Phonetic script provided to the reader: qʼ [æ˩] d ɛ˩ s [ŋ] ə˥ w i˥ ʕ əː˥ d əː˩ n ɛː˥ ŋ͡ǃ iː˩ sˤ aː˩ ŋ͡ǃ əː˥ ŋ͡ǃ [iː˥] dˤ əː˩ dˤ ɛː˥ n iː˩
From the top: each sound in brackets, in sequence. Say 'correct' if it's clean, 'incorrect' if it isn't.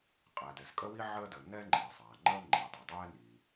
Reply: correct, incorrect: kʼ, incorrect: iː˩

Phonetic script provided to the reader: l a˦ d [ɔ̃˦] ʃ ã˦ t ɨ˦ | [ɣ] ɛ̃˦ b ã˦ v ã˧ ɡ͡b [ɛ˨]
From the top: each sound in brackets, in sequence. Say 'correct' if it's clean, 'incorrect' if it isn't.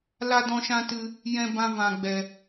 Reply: correct, incorrect: j, incorrect: ɛ˧

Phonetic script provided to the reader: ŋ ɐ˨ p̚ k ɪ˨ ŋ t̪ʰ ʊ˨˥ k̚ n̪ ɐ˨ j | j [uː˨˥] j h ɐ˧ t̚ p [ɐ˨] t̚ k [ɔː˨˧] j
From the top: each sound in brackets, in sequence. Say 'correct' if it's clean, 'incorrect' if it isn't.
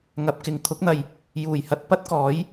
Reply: incorrect: uː˨˩, incorrect: ɐ˥, incorrect: ɔː˨˥

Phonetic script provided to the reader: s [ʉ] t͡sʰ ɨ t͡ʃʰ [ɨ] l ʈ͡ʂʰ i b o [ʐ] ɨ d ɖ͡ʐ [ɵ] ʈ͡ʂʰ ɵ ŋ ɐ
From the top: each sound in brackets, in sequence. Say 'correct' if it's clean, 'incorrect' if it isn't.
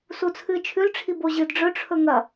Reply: incorrect: u, incorrect: ʉ, incorrect: ʑ, correct

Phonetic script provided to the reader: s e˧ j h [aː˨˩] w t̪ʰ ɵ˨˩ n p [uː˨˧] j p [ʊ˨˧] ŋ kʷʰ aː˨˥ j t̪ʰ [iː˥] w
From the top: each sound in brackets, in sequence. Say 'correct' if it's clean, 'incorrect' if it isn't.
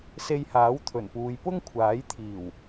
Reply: incorrect: aː˨˥, correct, incorrect: ʊ˥, incorrect: iː˨˩

